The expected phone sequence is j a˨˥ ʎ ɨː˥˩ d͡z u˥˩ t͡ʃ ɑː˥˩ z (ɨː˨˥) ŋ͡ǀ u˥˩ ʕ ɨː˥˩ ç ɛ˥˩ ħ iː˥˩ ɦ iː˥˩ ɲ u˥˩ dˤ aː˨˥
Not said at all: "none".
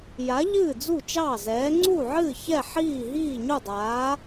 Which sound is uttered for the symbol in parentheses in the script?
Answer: ɛː˨˥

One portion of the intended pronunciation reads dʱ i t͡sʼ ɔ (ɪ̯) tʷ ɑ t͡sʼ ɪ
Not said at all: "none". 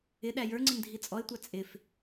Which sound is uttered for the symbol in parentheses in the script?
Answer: ɪ̯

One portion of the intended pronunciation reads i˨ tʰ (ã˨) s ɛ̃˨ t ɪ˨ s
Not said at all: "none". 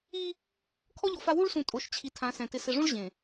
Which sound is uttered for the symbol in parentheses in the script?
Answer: ã˨˦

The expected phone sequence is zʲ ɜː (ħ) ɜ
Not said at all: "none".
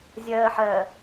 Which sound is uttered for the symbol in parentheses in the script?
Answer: ħ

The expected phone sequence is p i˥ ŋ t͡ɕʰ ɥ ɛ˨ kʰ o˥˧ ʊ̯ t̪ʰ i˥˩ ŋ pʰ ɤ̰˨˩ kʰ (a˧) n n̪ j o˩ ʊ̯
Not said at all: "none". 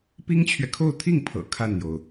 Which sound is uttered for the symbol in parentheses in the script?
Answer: a˥˩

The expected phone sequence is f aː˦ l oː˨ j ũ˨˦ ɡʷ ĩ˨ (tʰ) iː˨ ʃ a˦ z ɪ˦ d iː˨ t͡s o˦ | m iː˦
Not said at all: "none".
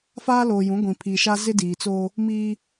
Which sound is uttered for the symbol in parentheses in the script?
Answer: pʰ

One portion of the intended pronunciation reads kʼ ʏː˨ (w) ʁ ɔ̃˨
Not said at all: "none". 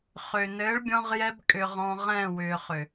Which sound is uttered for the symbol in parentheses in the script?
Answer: none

